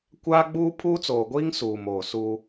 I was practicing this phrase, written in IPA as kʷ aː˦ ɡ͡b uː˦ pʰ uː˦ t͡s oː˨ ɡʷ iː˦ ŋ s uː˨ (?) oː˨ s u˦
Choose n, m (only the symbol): m